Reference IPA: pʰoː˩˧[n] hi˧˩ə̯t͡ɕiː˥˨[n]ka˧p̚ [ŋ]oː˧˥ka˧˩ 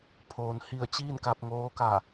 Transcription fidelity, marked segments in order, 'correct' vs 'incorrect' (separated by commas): correct, correct, correct